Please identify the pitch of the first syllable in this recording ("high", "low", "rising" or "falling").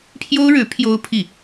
high